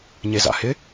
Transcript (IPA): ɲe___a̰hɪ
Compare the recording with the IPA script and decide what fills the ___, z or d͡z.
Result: z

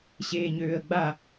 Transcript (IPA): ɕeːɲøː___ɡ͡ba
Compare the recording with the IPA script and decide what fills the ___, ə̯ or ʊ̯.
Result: ə̯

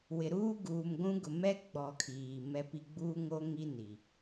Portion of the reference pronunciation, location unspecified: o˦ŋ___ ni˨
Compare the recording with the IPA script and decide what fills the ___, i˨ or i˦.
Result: i˦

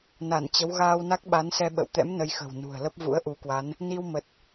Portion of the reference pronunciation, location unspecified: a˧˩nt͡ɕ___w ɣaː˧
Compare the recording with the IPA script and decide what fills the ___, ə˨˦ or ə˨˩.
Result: ə˨˦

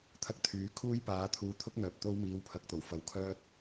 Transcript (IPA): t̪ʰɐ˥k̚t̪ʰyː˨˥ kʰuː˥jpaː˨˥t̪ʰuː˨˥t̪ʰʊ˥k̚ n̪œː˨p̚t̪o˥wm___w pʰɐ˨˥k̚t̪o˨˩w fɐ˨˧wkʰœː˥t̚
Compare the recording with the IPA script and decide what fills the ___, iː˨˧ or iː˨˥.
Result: iː˨˥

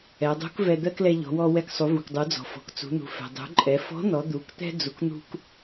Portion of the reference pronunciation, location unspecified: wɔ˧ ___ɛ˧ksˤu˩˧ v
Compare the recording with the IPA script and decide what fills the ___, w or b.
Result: w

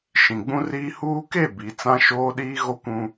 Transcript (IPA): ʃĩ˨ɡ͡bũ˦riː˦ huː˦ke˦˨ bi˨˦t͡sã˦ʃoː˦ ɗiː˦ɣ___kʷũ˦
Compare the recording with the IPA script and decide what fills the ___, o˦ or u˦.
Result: o˦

